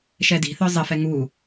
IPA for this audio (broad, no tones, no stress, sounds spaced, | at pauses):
ʃ ɛ d i̤ θ œ zˤ ɘ f ɛ ŋ u